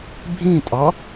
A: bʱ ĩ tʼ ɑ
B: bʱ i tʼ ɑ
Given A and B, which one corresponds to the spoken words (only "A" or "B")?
A